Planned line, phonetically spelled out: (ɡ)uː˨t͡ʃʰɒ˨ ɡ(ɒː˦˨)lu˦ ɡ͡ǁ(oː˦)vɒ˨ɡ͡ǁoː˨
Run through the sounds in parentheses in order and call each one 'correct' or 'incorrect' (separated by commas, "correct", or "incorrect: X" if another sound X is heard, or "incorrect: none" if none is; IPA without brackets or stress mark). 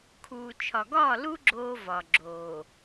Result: incorrect: kʰ, correct, correct